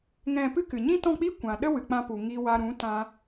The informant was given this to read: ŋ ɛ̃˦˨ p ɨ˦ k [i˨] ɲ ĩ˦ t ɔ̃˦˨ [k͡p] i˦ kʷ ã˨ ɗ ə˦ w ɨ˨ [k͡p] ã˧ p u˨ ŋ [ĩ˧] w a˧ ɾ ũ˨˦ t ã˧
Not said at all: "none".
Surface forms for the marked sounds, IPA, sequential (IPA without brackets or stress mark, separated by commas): ɨ˨, k͡p, k͡p, i˧